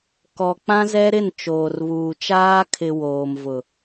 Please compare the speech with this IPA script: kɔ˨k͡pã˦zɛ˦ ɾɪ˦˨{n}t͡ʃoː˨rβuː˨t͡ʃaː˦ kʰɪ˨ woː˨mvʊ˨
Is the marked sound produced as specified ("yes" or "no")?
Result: yes